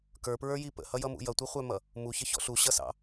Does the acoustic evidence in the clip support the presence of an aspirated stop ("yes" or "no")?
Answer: no